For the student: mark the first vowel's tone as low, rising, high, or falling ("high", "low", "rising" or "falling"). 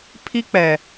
high